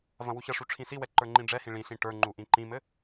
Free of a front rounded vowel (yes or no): yes